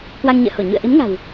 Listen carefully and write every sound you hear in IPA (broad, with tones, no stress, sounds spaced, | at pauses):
k w a˧ ŋ ɲ ə̰ː˧˨ h o˧˩ ɲ ṵ˧˨ ə̯ ʔ i˨˦ m ŋ a̤˨˩ w